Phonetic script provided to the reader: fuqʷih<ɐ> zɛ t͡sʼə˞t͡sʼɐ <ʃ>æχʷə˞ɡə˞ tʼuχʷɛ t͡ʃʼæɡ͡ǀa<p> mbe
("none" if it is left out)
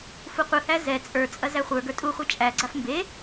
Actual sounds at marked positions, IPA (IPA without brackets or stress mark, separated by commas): æ, z, f